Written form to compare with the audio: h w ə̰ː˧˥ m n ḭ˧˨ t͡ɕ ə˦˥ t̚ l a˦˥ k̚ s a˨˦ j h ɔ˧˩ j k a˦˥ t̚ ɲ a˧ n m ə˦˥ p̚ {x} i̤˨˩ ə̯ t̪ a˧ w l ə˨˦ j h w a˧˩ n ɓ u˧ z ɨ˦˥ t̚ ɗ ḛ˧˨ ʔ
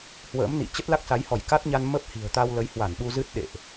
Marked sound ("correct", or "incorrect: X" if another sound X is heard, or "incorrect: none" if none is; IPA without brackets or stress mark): incorrect: h